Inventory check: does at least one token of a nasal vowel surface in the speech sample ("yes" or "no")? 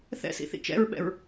no